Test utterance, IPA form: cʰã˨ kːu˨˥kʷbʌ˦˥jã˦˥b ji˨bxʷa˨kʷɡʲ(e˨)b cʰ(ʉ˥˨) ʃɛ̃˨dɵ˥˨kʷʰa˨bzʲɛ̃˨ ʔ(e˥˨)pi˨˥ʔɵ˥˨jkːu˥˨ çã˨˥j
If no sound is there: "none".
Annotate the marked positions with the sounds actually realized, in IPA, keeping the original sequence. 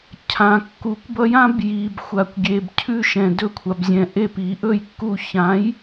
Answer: e˨, ʉ˥˨, e˥˨

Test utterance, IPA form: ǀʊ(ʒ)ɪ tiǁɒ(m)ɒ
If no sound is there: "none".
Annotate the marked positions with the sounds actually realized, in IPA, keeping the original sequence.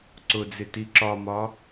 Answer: d͡z, m

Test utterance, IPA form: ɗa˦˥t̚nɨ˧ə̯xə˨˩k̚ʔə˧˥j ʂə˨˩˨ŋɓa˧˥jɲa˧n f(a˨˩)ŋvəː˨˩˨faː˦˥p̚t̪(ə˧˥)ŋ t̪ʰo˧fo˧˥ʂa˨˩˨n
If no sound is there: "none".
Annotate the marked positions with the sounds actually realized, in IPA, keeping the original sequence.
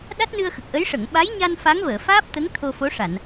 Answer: a˧˥, ə˧˥

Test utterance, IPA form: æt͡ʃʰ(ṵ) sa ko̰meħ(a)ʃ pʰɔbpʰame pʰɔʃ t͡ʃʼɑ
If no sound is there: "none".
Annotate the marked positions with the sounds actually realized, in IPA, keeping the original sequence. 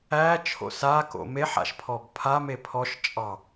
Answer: o̰, a̰

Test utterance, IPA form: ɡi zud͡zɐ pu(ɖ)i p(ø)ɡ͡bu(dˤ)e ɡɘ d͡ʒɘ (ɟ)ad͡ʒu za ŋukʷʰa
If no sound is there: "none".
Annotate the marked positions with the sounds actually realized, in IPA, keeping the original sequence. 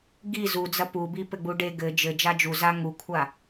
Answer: b, ɘ, ɖ, d͡ʒ

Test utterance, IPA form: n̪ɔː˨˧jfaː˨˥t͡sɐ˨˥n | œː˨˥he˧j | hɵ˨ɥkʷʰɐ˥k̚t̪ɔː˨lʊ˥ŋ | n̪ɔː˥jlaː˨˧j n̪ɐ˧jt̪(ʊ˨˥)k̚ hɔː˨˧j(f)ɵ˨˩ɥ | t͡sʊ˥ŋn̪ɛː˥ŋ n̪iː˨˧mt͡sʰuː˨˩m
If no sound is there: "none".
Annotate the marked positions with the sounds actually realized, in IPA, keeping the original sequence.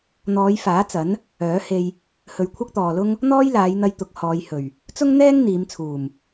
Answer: ʊ˨˥, h

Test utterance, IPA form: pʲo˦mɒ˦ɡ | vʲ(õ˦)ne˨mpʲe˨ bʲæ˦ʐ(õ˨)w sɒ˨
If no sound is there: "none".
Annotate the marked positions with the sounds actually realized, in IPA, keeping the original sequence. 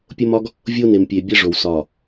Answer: o˦, o˨

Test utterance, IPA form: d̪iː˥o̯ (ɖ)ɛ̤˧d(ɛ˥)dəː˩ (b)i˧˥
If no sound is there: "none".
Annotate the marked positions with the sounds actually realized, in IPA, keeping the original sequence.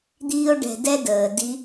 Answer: ɖ, ɛ˥, d

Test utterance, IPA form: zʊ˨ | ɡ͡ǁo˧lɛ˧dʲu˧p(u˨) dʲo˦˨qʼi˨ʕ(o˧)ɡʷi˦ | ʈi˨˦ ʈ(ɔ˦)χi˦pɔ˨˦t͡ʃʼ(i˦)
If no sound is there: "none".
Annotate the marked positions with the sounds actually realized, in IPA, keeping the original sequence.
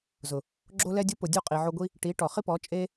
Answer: ʊ˨, o˧, ɔ˨, e˦

